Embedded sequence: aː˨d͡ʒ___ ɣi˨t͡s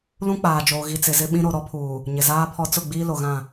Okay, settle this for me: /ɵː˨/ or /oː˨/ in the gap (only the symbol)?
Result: oː˨